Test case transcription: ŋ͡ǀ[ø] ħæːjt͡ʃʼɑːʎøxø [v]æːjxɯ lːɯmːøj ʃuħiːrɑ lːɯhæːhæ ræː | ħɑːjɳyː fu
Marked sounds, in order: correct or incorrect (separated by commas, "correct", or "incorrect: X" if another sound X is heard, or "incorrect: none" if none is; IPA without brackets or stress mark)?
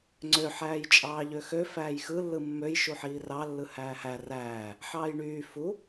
correct, incorrect: f